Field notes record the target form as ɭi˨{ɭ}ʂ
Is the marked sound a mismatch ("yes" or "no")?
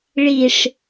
yes